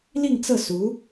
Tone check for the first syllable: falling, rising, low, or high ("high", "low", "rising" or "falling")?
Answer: falling